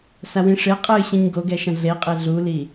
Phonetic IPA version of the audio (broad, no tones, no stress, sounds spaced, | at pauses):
s a w ĩ ʂ e qʼ ɨ ɕ ĩ ɲ ɡ o ɡ ɛ ʃ ɐ̃ ɮ e qʼ e ɮ u l i